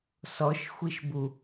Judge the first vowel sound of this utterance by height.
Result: mid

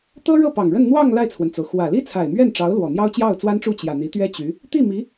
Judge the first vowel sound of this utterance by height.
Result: mid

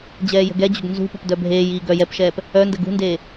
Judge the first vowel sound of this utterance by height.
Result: mid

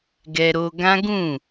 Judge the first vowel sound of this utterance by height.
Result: mid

